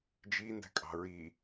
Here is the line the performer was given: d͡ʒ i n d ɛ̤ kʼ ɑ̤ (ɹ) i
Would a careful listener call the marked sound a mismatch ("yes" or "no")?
no